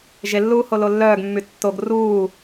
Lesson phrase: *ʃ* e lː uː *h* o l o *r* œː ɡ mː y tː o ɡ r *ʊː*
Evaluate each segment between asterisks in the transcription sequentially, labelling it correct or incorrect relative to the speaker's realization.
incorrect, correct, incorrect, incorrect

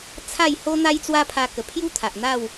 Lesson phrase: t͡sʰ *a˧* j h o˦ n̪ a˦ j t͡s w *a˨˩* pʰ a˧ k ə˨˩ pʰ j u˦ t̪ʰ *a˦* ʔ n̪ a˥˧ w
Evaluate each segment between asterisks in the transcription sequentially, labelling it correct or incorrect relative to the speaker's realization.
incorrect, incorrect, incorrect

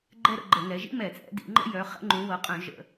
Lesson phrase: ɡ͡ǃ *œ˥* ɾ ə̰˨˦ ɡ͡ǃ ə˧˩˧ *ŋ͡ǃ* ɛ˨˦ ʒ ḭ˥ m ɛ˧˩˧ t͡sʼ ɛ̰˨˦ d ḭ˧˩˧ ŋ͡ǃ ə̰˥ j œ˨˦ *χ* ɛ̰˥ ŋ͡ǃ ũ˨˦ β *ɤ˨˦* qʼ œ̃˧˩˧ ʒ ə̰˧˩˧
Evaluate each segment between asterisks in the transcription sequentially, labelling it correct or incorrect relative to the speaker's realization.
incorrect, incorrect, correct, correct

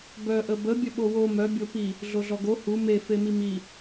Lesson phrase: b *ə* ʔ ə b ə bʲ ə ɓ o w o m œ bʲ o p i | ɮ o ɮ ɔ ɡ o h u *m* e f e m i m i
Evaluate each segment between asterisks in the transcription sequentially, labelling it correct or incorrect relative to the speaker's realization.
incorrect, correct

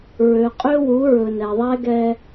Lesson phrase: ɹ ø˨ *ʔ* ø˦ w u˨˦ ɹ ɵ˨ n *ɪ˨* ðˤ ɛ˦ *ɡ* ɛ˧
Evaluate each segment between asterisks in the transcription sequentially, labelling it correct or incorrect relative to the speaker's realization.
incorrect, incorrect, correct

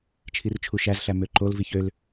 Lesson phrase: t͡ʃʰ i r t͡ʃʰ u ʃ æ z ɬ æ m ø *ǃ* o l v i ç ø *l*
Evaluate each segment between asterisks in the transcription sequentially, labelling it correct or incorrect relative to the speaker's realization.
correct, correct

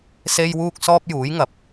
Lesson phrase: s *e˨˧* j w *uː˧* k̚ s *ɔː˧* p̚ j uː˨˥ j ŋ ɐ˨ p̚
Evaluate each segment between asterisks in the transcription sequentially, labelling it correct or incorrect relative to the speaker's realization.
incorrect, correct, correct

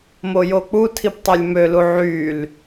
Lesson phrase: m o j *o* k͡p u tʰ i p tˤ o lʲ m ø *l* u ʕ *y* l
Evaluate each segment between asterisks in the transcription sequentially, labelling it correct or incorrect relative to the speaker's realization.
correct, correct, correct

